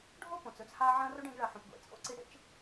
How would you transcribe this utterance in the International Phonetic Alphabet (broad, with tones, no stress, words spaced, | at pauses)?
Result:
ɖʱo˥põ˩t͡sɵ˦t͡s ha˦ʕɐ̃˥ ro˥ɖẽ˦ɡɭɐ˨ ħõ˩pɡʷḛ˩ t͡sʼo̰˥ǀi˨ ɽḛ˦t͡ʃ